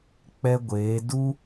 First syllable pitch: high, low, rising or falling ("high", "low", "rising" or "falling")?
high